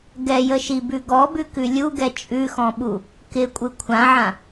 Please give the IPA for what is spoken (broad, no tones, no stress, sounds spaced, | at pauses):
ɡ ɛ j ə ʃ i b ʉ ɡ ɔ b ʉ k ʉ lʲ u ɡ ɛ t͡ʃʼ ʉ x ɔ̃ ɓ u | k ɪ kʷʼ ɯ kʷʰ ã ʕ ã